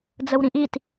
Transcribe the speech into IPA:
d͡z ə w ɾ ĩ ʔ i t

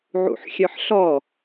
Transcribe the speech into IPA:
ʕ ṵ ħ xʲ œ ħ ɬ ɔ

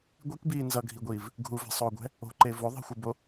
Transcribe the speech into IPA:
ɡʷ i k b iː n z ʌ ɡʱ i ɡʷ iː v | ɡʱ u v ɛ̤ sˤ oː ɡʷ ɛ̤ | o̤ ǃ e v o ðˤ i̤ xʷ ɯ b o

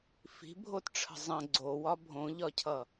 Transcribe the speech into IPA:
f i̤ bʱ o t ʈ͡ʂʰ ə̤ zˤ ə̃ ɡ͡ǀ o w ɒ bʱ õ ʎ ɒ cʰ ʌ

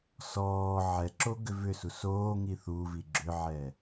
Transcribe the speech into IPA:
s ɔː ʕ ɛ ǁ o ɡ ʏ v ʏ s u s oː ŋ i θ u v i ɡ͡ǁ ʏ ʕ ɛ

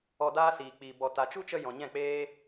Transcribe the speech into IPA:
ɔ˧ d aː˦ s iː˨ k͡p iː˨ b ɔ˨ t a˨ t͡ʃ u˦ t͡ʃ ə˧ j ɔ̃˨ ɲ ɛ̃˦˨ k͡p eː˦

